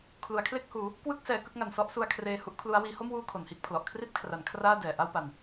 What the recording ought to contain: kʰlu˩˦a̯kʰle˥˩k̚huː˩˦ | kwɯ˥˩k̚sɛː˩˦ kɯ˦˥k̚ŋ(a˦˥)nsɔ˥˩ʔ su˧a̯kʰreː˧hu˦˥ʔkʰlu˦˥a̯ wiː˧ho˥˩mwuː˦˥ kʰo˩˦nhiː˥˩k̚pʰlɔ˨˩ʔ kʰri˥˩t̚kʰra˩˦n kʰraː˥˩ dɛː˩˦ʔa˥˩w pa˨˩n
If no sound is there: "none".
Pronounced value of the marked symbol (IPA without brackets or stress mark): a˨˩